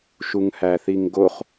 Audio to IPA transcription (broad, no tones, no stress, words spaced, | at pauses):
ʃuŋhæθiŋɡoχ